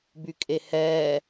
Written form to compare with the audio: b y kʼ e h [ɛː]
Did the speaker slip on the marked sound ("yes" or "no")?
no